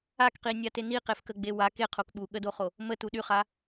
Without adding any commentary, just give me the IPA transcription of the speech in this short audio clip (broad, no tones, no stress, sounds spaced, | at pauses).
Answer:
a k q i nʲ a t e n i q e f k ə ɡ͡b e w a k e qʰ o k ɓ u ɠ ə d o χ o | m ə t u ɗ y χ a